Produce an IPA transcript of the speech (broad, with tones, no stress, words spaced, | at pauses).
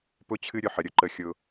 pʊ˦t͡ɕʰɨ˦ ɾʲʊ˦ħə˨ɾʲʊ˦ ǃə˦xʲʊ˦